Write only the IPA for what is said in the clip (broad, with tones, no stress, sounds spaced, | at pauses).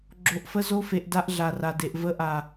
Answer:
ɡ͡ǁ o˧ ʔ f ə˦ z o˦ f e˧ ʔ d a˦ ʔ ɮ a˨ r a˨ d e˨ ʔ v ə˧ ʔ a˨